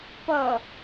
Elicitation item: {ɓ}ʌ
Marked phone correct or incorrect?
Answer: incorrect